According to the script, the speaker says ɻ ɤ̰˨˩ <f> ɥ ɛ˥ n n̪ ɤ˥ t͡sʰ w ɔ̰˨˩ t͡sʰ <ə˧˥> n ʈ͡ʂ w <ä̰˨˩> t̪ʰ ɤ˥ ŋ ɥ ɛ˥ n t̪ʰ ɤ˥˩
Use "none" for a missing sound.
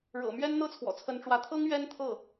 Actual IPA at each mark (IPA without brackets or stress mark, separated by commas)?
m, ə˧˥, ä˧˥